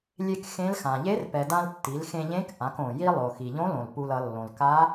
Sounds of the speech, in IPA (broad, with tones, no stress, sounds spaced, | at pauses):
lʲ e˧ k x ẽ˧˥ l x ã˩ ʎ e˧˥ r p ɛ˩ d ã˧ l tː i˩˧ l x ẽ˧ ʎ ẽ˧˥ k ʔ ã˩˧ k õ˩ j i˥ lˠ o˩ x i˩ ʎ õ˧˥ l õ˩ l p u˧ l ʌ˩˧ lː õ˩ l k a˧˥